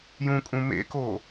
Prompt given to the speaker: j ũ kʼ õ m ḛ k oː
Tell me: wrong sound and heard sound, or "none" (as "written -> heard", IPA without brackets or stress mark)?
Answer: õ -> ũ